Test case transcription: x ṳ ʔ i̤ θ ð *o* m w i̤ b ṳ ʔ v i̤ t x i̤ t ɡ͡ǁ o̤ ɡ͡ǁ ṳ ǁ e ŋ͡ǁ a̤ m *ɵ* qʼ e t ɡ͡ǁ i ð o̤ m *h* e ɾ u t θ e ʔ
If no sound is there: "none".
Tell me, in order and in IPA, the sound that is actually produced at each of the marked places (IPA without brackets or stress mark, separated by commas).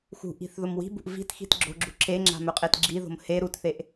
o, ɵ, h